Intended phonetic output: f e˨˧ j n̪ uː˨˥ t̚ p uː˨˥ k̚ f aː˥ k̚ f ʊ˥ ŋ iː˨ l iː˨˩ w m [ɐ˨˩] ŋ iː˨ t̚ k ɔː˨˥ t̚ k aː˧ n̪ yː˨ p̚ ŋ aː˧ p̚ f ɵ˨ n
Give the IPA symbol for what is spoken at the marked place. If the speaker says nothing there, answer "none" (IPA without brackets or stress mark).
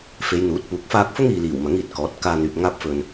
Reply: ɐ˨˥